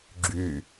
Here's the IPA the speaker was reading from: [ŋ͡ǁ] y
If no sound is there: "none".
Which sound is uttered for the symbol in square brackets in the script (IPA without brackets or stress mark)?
ɡ͡ǁ